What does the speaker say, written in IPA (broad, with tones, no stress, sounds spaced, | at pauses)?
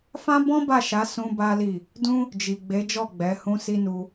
f ã˦ b ɔ̃˦ b a˦˨ ʃ a˨˦ s ũ˦ b a˦ l i˦˨ | d ũ˦ | d͡ʒ i˨ ɡ͡b e˨˦ d͡ʒ ɔ˦˨ ɡ͡b ɛ˨˦ h ũ˦ s i˦ n u˧